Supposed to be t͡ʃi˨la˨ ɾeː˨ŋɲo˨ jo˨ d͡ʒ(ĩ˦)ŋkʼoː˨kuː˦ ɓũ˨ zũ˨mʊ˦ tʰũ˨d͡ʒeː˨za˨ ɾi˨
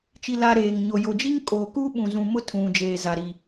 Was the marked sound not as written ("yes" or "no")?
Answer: yes